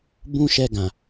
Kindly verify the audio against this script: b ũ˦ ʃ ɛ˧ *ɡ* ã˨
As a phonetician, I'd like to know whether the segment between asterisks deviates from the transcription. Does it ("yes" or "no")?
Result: no